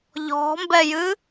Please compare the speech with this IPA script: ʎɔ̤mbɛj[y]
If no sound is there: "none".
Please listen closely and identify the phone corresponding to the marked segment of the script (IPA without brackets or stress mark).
ɨ